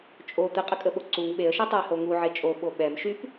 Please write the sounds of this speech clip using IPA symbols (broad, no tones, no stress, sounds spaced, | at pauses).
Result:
t͡ʃʼ o t̪ ə qʼ ə kʼ ə ɓ o ǀ u ŋ ɓ e ə̯ ʃ e tˤ u ə̯ h o ŋ u ʕ e t͡ʃʼ o ɓ o ɓ ɛ m ʃ y p